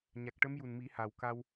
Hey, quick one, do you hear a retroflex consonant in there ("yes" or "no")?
yes